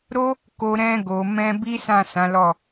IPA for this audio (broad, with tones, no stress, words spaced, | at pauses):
ɾo˦ | ko˧ ɾɛ̃˧ɡo˨mɛ̃˧ bi˦sã˦˨ sã˨˦lɔ˦˨